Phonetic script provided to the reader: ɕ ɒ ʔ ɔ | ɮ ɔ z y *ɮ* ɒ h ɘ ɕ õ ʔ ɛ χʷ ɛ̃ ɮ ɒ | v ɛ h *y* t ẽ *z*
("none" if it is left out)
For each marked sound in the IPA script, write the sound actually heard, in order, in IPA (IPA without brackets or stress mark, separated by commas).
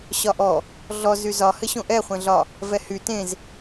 z, y, z